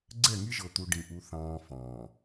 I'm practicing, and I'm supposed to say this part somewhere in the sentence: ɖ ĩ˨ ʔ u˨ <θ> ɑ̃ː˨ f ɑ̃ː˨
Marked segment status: correct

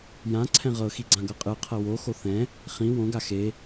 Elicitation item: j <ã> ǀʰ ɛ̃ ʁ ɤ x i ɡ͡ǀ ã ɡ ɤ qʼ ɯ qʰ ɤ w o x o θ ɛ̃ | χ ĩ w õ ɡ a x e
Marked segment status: correct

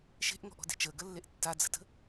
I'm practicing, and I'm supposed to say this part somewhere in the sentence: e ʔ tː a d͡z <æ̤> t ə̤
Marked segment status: incorrect: ə̤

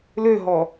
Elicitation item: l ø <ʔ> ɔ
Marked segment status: incorrect: ɦ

